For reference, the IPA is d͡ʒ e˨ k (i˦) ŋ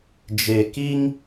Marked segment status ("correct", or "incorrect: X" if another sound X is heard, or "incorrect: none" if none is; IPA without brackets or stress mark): correct